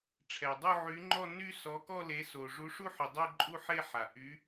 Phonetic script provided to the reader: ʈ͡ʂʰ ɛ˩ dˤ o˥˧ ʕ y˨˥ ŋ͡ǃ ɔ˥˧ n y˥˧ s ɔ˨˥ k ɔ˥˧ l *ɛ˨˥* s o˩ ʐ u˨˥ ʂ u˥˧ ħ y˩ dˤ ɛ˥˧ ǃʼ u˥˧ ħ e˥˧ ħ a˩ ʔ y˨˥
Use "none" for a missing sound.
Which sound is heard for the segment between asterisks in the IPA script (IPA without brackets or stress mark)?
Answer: e˨˥